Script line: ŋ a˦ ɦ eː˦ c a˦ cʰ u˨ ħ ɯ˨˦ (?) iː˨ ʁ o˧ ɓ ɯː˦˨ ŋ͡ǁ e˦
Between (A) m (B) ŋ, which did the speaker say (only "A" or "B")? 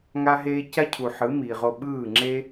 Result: A